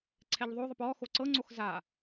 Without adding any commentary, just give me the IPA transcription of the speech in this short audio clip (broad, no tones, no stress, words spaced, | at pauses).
ǀʰɛʎðˤoðˤəp ɔxo ǀɤŋ͡ǀox za